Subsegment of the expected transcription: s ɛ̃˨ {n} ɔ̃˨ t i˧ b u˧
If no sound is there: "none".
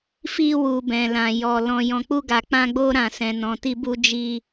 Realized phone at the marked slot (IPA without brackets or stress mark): n